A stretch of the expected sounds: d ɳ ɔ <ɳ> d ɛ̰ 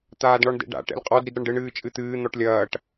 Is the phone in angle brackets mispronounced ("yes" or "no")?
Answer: no